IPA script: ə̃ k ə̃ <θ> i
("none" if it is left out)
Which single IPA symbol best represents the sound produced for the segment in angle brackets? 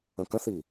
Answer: θ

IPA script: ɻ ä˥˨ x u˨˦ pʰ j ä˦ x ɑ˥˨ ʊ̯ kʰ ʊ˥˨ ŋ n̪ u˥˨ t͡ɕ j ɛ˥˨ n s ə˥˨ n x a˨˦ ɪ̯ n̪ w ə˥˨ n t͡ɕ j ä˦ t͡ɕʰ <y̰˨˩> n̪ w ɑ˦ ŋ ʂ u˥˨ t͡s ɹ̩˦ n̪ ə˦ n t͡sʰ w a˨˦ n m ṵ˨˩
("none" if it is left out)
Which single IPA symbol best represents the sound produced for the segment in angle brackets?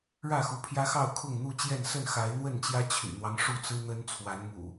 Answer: y̰˨˩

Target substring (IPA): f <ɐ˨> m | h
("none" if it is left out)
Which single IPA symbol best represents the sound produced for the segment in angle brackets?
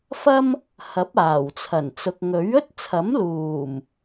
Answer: ɐ˥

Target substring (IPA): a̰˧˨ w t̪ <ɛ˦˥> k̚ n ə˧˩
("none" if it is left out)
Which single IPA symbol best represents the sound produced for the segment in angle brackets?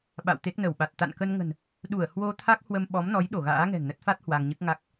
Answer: e˦˥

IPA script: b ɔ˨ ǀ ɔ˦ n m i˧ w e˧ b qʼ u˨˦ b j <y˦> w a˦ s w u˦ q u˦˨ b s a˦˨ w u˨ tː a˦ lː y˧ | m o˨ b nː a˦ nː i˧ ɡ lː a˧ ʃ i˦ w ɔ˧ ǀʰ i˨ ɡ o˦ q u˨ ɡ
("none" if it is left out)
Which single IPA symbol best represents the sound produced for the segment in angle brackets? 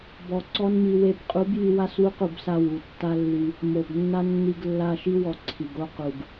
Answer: y˧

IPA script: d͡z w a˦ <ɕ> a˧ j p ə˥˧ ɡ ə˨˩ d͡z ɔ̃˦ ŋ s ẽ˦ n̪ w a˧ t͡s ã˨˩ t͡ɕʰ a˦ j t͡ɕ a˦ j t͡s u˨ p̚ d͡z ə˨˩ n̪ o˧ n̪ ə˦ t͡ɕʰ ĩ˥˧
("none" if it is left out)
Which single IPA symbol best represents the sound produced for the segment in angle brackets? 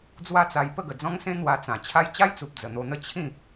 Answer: t͡s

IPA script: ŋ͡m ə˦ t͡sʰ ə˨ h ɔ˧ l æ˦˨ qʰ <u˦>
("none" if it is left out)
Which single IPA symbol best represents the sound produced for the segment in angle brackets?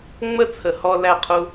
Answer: u˦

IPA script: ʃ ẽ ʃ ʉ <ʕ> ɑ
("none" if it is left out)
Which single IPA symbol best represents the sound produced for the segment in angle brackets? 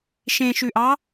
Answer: ʔ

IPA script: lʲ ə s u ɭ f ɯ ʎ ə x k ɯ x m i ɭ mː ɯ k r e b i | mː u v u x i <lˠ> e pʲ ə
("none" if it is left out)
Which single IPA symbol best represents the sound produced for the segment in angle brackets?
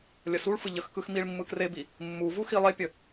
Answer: lˠ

